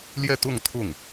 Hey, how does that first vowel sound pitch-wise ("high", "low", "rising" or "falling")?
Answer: falling